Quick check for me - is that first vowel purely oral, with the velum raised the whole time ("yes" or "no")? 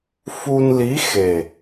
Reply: yes